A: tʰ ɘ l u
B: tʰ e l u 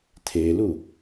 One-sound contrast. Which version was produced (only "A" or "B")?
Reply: B